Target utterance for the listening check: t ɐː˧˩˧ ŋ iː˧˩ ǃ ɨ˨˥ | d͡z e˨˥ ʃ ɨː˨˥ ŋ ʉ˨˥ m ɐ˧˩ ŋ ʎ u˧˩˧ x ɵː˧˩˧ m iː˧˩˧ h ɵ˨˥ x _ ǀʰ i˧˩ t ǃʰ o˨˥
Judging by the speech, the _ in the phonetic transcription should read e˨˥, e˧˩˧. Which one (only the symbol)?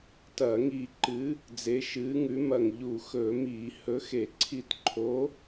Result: e˧˩˧